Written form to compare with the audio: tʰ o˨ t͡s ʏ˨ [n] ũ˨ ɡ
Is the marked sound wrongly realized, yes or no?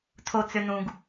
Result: no